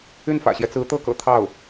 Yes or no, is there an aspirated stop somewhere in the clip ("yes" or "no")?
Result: yes